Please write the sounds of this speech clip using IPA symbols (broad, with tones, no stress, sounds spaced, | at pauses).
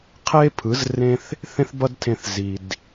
qʰ e˥ pʰ ɯ˩˥ z r ẽ˥ θ | θ ẽ˥ θ b ʌ˥ d tʰ ẽ˧ θ z i˩ d